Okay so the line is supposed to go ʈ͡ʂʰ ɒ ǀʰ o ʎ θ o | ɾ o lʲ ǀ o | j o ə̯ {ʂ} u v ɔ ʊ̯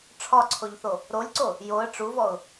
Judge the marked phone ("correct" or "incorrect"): incorrect